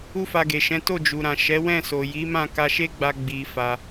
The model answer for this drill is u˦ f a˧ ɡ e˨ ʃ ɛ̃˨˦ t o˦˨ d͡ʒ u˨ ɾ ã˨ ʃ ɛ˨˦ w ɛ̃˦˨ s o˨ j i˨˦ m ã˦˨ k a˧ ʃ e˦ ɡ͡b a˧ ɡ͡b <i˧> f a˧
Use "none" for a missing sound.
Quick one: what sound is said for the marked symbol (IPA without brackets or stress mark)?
i˧